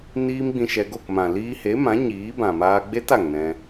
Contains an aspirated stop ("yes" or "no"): no